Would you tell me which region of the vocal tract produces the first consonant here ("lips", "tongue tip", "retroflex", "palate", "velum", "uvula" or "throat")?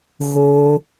velum